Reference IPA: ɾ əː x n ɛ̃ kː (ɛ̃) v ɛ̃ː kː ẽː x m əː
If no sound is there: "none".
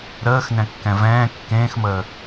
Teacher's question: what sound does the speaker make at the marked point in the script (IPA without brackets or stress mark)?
ɛ̃